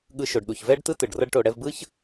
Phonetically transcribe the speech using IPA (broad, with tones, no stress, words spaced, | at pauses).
ɠɯ˧ʃo˨ɖɗu˨çvɛ˦ɖ tɯ˦tɯ˨ɖ rʌ˦ɖʈo˧ ɽɛ˧vbɯ˦ç